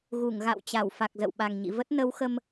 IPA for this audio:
ɣ u˧˩ ŋ ɣ a̰˧˨ w t͡ɕ a˧˩ w f a˨˩ k̚ z ə̰˧˨ w ɓ a˨˩ ŋ ɲ ḭ˧˨ v ə˦˥ t̚ n ə˨˦ w x ə˧ m

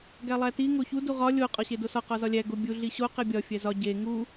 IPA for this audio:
ɡ æ lˠ æ t i ŋ o ç u d u ʁ ɒ lʲ o qʼ ɒ ɕ e d o s ɒ q ɒ z ɒ lʲ æ ɡ o bʲ u ɮ i ɕ o q e bʲ ɒ fʲ æ z ɒ ɟ e ŋ u

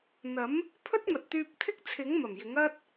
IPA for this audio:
n̪ ɐ˨˥ m | pʰ ɵ˥ t̚ m ɐ˨ t̚ t̪ yː˧ p̚ t̪ʰ ɪ˥ k̚ t͡sʰ ɪ˨˥ ŋ m ɐ˨˩ m j ɪ˨˥ ŋ ɐ˥ t̚

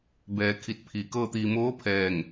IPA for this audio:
b ɛː˩˧ kʰ i˧˩ t̚ pʰ iː˩˧ k ɤː˥˨ t̪ iː˧ m oː˧˥ pʰ ɛː˥˨ ŋ

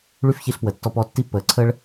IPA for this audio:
ɭ y˦ f ç i˧ ɬ p w ə˨ tː ɔ˧ p ɔ˧ tː i˦ pː əː˨˦ ǀʰ əː˦ ɭ

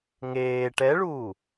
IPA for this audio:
ŋ eː ʈ ɛ ɭ uː

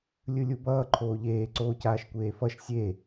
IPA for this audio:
lʲ ɯ lʲ u b ʌː ǃʰ oː ʎ eː ǀ oː c aː ʃ kʷ eː f ʌ ʃ sʲ e

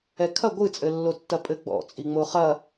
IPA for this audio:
ɛ kʰ ɐ ɡʷ ɨ t͡sʼ ɘ lː o tː ɐ pʼ ɘ ɡ͡b ɔ̰ t͡sʼ i ŋ͡m o χ ɐ

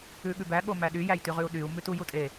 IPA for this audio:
ʉ ɠ ʉ b æ ɠ o m æ ɗ y j æ j t y ʁ ʉ u̯ ɗ y u̯ m ʉ t u j u tʼ e

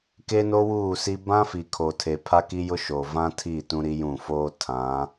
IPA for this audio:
k e˦ n o˦ w uː˦˨ s i˦ b ã˦ f i˨ kʰ o˨ tʰ e˨ pʰ a˦ k i˦ j ʊ˦ ʃ o˨ v ã˦ tʰ i˦˨ t ũ˦ ɾ i˦ j ũ˦˨ f oː˦ tʰ ã˨˦

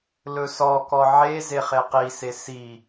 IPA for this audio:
l ɵ s ɔ k ɔ ʕ e z e χ e q i s e s i

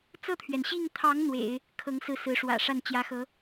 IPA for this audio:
t͡s ɤ˥˩ t̪ʰ ɥ ɛ˩ n ɕ i˥˩ ŋ t̪ʰ ɑ˧˥ ŋ n̪ w ḛ˨˩˦ ɪ̯ | kʰ ɤ˧˥ ŋ s ɹ̩˥˩ s ɹ̩˧˥ ʂ w ä̰˨˩ ʂ a˥˩ n t͡ɕ j ä˧˥ x ɤ˧˥

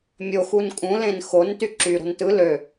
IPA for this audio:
mʲ o x u n kʼ ũ l ẽ n x o n t y ǁ y ɾ o̤ n t ɯ l ø

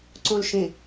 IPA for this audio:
ǀ õ l ʃ ẽ

